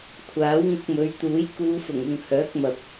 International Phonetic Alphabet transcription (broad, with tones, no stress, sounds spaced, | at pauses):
kʷʰ aː˨˥ w ŋ ʊ˧ k̚ m ɵ˨˧ ɥ t̪ uː˨˥ j k uː˨˧ f ʊ˨˩ ŋ ʊ˨ ŋ h œː˨˥ k̚ m ɐ˨ p̚